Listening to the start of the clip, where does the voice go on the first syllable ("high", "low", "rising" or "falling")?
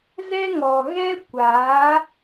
high